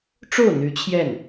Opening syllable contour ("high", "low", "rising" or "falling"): falling